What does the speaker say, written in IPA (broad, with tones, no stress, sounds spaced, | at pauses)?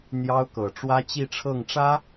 n̪ j ɑ˥ ʊ̯ k ɤ˨˩ ʈ͡ʂ w ä˥ t͡ɕ i˥˧ ʈ͡ʂʰ ɤ˥˩ ŋ ʈ͡ʂ ä˥